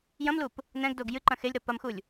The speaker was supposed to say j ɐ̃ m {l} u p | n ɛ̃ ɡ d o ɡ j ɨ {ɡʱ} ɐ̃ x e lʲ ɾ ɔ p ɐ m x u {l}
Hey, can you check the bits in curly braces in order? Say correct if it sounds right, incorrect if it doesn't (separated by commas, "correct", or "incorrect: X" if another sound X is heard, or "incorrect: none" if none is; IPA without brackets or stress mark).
correct, incorrect: ǃ, incorrect: lʲ